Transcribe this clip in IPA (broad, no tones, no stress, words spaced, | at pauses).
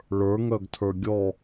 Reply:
ɭə˞ŋœɡtʰə˞ ɡʲɔ